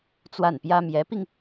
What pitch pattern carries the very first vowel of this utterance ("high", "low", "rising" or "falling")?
falling